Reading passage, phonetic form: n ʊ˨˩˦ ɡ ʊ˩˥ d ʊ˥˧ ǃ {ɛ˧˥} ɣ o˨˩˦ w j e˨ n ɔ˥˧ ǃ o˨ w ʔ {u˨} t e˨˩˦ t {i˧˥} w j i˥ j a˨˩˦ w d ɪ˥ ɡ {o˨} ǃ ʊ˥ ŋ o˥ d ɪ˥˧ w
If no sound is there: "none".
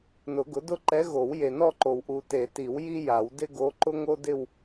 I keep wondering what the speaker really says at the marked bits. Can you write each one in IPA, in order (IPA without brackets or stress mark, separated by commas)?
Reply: ɛ˧˥, u˨, i˨˩˦, o˧˥